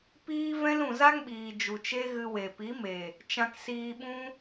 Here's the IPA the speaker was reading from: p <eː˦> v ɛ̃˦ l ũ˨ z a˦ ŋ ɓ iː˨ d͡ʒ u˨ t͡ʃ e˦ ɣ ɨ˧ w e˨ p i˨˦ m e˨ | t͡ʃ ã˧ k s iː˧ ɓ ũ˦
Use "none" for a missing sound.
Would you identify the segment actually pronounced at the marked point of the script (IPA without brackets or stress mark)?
iː˦